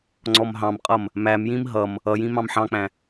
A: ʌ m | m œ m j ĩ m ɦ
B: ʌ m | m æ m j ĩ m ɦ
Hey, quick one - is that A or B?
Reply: B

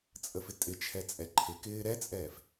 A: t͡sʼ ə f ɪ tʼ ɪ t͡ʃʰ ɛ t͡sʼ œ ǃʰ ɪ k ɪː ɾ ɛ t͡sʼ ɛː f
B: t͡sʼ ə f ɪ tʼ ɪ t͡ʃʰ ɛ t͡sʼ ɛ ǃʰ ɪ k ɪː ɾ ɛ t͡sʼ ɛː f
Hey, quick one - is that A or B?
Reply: B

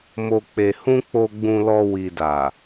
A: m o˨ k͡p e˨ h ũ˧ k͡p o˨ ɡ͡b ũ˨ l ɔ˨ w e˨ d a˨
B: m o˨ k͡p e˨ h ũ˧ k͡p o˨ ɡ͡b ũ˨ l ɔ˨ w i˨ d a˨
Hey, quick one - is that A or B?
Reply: B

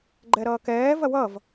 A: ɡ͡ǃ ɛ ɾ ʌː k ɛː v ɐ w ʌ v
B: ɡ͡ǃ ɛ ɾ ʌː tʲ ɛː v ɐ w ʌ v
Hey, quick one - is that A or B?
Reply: A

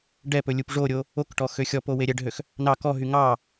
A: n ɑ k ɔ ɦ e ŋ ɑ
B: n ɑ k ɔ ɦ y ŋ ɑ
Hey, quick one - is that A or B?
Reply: B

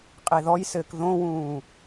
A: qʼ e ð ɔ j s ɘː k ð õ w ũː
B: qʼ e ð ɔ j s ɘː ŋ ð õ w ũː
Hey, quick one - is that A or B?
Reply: A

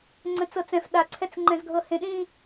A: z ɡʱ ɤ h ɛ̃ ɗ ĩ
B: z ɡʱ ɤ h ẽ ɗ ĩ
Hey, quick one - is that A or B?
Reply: B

